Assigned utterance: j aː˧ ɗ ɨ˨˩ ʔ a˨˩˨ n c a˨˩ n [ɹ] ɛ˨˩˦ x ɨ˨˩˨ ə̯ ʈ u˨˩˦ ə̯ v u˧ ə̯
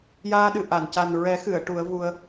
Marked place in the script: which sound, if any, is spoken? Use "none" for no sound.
ɹ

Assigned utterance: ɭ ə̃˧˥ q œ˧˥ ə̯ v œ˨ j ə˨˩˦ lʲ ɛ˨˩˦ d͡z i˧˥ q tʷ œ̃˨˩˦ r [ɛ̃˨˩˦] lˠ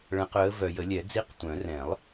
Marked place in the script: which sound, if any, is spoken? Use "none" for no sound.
ɛ̃˨˩˦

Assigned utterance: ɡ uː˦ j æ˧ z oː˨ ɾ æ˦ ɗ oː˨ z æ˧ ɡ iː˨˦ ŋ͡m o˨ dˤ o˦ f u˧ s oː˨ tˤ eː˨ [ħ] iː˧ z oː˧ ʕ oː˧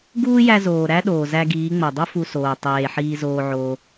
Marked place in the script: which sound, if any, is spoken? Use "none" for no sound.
ħ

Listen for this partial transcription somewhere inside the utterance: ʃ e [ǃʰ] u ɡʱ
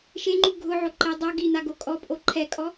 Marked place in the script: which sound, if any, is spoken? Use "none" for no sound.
ŋ͡ǃ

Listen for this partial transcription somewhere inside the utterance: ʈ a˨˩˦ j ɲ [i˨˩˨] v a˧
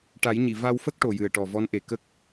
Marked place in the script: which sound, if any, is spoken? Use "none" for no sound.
i˨˩˨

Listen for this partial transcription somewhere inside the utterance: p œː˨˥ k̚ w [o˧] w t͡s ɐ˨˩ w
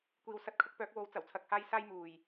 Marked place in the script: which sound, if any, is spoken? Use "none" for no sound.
o˨˥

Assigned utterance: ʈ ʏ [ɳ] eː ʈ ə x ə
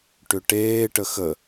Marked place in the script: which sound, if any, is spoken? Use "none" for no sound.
ʈ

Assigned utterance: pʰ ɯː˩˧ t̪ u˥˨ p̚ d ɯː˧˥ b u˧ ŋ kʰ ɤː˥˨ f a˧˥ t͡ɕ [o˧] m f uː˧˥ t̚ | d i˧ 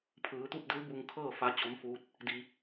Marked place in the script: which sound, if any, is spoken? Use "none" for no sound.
o˧˥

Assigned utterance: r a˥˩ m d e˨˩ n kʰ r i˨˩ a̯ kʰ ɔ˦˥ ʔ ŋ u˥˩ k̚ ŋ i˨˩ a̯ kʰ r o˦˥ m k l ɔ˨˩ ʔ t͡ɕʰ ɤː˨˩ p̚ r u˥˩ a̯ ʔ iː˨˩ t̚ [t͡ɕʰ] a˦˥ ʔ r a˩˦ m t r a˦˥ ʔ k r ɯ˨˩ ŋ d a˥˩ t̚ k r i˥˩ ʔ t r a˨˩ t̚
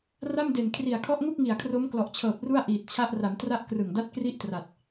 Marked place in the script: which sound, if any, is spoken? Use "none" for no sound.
t͡ɕʰ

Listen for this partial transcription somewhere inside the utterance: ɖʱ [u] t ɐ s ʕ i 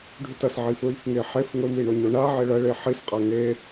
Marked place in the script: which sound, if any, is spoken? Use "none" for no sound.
ʉ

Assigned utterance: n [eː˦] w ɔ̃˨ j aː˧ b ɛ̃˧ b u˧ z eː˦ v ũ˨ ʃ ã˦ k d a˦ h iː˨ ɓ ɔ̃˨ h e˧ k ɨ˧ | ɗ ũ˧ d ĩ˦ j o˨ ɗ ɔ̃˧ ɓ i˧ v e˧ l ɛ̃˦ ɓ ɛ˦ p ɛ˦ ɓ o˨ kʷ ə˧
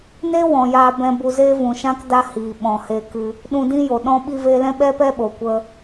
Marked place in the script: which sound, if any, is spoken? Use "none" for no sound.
e˦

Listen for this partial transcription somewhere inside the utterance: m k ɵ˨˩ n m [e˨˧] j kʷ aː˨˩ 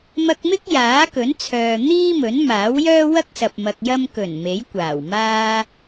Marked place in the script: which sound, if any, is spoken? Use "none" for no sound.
e˨˥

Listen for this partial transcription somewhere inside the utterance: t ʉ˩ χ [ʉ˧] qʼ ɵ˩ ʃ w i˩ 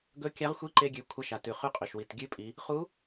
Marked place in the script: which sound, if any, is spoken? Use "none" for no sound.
ʉ˧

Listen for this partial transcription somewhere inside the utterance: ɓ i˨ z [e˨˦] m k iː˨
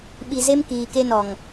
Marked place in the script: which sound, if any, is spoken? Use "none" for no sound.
e˦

